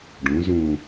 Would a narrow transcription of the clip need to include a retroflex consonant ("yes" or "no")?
yes